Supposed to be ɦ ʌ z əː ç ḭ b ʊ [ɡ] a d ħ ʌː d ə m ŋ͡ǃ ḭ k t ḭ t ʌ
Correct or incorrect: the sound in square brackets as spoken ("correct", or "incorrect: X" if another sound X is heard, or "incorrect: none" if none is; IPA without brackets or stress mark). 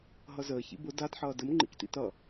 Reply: incorrect: d